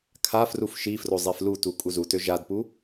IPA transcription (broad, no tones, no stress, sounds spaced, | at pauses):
kʰ a f r u f ʃ i f r o zˤ e f l u t u kʼ u z u t ø ʒ a d p u